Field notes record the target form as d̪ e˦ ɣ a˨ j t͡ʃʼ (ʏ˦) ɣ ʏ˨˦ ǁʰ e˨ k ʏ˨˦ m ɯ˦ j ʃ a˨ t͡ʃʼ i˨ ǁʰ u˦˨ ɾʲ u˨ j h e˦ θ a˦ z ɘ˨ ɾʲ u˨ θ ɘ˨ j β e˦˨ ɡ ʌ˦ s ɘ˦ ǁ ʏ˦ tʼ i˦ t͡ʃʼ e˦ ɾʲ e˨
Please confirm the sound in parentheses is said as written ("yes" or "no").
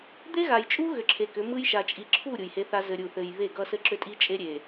no